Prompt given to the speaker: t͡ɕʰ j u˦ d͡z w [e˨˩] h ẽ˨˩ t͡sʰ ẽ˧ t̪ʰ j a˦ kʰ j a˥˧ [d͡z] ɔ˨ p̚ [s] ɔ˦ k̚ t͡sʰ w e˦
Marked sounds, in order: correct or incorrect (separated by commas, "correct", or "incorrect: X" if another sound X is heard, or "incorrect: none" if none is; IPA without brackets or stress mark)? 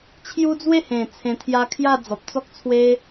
incorrect: e˥˧, correct, incorrect: t͡s